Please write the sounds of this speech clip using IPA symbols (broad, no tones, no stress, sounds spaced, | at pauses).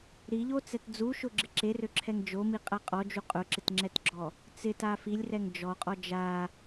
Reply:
ɾ i ʎ o t͡s ɛ t d͡z u ʃ ʊ ɡ͡ǁ ɪ ǁ e r ø ǁʰ ɛ ŋ d͡ʒ o m i qʼ a qʼ ɔ d͡ʒ u qʼ ʊ ǁ ɪ t ŋ͡ǁ ɛ t ɡ͡ǁ ɔ | t͡s ɪ t a f i lʲ r ɛ ŋ d͡ʒ ɔ qʼ ɔ d͡ʒ a